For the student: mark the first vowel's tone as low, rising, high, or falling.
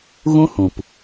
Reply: high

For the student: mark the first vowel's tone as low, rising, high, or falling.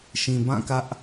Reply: low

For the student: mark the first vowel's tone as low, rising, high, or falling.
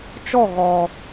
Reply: falling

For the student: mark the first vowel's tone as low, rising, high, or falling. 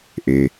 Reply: low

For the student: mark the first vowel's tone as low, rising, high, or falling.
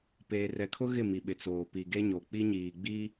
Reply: low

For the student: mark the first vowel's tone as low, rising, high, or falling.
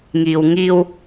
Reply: low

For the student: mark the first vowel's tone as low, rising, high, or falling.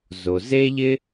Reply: low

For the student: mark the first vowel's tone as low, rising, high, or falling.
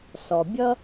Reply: low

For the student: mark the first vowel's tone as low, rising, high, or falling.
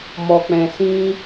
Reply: low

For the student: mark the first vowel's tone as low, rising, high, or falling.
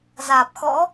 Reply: low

